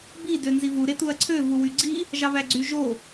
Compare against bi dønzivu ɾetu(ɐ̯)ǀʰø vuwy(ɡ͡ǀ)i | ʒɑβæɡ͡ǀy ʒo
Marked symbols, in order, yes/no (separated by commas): yes, yes